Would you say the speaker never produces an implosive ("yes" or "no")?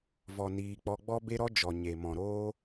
yes